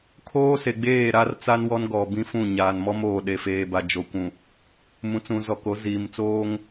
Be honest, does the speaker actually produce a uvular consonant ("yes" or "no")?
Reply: no